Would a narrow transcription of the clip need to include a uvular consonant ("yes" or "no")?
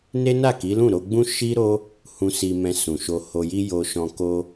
no